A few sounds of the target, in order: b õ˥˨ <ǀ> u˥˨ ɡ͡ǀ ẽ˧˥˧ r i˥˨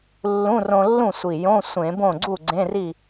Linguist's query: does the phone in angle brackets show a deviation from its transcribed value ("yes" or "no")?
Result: yes